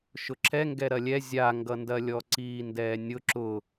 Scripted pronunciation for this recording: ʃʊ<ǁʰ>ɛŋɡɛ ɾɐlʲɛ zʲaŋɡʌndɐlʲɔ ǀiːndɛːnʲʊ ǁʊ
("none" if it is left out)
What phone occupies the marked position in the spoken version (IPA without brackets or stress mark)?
ǁʰ